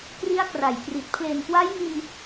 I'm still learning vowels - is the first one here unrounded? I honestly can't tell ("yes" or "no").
yes